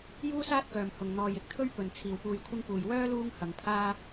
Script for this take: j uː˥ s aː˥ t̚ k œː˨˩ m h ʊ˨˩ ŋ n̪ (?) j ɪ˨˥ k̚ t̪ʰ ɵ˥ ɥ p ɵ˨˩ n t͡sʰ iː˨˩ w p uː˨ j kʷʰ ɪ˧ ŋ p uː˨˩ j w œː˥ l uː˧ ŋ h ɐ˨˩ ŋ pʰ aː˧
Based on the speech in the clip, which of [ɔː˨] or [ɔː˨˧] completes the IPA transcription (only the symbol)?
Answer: ɔː˨